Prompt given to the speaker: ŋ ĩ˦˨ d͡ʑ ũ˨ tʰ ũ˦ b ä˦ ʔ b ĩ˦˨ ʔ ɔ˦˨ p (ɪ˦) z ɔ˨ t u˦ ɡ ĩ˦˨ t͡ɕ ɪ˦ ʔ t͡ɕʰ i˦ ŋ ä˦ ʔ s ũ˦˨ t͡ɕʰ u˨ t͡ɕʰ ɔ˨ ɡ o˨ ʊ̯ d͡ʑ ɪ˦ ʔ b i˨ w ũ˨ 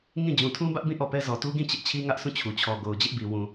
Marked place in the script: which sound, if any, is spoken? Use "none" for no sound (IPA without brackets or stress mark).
ɛ˦